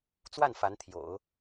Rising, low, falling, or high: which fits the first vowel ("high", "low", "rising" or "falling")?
falling